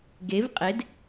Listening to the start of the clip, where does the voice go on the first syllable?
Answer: rising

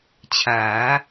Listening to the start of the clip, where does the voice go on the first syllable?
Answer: rising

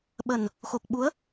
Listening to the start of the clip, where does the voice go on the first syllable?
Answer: low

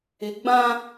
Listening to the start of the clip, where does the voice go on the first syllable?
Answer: low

